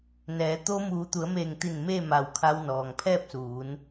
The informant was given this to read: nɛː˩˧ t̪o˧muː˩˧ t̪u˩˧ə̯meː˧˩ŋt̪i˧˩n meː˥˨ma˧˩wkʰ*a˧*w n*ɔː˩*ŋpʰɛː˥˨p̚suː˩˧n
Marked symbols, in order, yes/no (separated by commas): yes, yes